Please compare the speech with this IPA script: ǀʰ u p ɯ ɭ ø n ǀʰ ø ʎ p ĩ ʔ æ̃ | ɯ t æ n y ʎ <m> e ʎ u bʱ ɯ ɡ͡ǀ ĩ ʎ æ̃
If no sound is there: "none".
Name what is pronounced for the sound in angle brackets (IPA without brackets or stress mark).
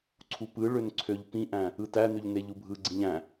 n